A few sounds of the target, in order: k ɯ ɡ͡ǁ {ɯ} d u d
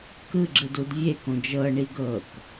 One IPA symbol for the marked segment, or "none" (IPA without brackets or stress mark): ɯ